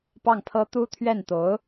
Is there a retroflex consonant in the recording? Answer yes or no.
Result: no